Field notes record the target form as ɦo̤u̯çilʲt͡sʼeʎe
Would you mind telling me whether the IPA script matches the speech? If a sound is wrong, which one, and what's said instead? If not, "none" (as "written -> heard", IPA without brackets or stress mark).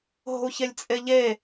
i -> e